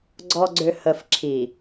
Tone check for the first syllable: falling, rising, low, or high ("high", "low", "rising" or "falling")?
low